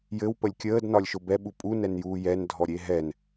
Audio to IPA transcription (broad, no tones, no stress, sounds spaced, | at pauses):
j ɘ w p ə lʲ kʲ əː d n ɒ lʲ ʃ o b ɛ ɓ u pʼ u n ɛ n j uː j ɛ n dʱ ɔ ɾʲ e ɦ ɛ n